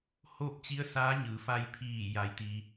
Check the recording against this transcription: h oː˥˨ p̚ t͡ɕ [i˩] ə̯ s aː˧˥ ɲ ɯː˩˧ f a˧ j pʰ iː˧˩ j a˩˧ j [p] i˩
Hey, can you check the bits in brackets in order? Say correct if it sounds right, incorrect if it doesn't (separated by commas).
incorrect, incorrect